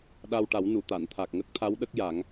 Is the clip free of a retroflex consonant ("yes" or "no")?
no